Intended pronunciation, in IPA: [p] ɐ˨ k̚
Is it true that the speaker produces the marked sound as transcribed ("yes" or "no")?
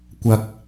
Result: no